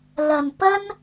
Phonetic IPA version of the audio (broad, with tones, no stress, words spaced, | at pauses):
lɐ˨˩n pɐ˥n